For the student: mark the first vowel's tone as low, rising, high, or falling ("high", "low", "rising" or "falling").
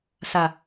low